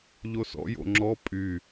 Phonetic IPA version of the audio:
ʎ o s ɔ̰ j o̰ ŋ͡ǁ ɔ pʼ y

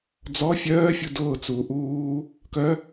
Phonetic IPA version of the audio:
d͡z ɔ fʲ œː fʲ u d ʊː t͡s uː ʔ uː | k œ

